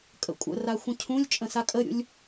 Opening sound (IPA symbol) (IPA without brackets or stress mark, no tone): kʼ